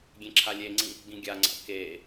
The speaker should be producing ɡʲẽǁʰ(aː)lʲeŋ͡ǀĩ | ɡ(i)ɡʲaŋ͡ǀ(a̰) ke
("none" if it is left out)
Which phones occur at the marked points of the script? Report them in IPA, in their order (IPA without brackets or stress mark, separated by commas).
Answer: a, ĩ, a̰